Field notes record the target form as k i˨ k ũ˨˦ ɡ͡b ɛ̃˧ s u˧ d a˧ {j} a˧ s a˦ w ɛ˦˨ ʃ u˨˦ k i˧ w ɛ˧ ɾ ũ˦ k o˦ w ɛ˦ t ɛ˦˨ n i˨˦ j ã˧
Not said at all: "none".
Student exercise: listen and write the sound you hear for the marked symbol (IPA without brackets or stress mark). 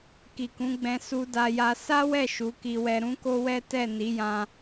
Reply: j